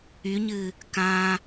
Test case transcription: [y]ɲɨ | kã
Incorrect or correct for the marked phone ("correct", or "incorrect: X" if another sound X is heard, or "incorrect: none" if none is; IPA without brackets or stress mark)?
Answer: correct